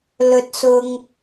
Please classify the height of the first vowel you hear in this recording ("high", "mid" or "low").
mid